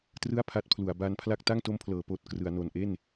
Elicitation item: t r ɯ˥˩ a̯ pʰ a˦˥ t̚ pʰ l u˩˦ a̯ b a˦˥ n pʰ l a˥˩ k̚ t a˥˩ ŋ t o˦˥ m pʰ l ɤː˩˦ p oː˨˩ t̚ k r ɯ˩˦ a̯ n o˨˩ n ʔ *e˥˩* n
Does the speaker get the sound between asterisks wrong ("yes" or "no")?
no